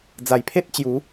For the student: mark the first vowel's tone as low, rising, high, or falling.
low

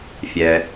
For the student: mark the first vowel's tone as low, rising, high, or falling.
low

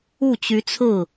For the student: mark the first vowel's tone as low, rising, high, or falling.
falling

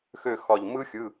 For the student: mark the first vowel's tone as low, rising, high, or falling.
falling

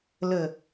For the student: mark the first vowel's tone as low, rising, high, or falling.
low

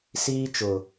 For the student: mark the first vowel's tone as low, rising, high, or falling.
high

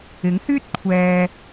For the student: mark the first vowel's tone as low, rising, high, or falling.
rising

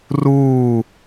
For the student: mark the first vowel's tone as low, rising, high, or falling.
falling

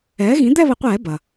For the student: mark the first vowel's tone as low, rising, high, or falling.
rising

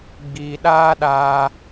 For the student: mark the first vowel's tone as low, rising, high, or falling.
low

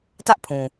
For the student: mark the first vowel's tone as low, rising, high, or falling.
high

